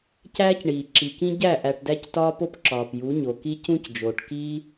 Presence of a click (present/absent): present